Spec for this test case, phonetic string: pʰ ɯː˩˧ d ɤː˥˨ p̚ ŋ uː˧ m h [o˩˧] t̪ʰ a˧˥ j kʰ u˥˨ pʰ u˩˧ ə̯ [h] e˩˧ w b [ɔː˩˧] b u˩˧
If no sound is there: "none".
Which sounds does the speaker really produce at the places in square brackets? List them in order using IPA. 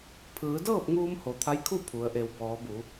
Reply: o˩˧, ʔ, ɔː˩˧

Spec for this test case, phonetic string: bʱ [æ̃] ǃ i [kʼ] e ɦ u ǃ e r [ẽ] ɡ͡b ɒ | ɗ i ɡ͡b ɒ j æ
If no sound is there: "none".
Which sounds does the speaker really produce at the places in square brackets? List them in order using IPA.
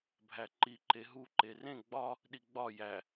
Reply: æ, ǃ, ẽ

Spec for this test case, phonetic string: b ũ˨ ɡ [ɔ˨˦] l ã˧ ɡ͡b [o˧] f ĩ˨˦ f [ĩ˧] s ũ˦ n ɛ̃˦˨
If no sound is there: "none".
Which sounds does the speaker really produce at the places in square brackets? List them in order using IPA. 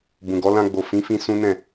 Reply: ɔ˨˦, o˨, ĩ˧

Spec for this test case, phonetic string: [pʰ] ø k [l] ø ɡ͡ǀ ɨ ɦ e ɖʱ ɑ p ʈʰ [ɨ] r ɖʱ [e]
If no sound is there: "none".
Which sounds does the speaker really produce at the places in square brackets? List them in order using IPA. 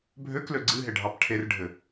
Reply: bʱ, l, e, ɘ

